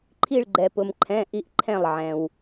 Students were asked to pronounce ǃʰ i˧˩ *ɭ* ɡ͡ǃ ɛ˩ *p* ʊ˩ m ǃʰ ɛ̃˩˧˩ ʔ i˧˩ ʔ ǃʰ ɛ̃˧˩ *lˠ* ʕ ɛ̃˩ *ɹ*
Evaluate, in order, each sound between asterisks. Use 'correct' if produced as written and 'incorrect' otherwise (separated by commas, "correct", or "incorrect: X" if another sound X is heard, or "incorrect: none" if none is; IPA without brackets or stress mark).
correct, correct, correct, incorrect: w